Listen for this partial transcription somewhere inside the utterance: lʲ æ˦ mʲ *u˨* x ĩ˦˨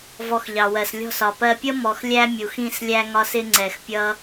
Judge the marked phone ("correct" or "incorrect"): correct